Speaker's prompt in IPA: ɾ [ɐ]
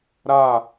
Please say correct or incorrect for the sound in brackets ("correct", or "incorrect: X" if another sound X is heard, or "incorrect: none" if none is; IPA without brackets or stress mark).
incorrect: a